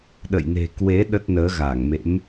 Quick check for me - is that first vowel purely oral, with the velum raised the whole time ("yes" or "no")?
yes